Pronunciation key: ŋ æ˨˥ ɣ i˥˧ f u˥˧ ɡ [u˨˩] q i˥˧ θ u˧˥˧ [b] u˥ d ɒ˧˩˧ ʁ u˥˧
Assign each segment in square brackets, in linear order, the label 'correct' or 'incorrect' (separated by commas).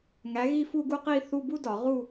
incorrect, correct